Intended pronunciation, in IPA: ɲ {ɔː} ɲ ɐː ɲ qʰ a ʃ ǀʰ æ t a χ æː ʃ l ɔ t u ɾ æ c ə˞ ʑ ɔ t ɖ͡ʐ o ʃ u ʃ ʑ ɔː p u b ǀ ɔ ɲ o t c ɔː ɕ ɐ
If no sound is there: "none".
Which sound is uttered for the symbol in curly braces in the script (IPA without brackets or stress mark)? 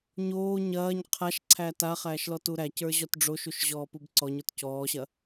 oː